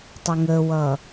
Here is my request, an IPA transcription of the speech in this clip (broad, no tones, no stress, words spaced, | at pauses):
tˤʊŋəwʌ